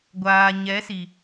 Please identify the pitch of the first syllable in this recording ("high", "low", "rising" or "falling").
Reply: low